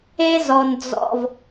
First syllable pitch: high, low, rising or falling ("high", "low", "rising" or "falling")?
high